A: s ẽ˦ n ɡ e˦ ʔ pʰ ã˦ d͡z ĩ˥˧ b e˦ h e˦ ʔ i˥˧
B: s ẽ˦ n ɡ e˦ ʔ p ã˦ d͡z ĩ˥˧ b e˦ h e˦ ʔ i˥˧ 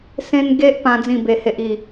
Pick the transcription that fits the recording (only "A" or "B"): B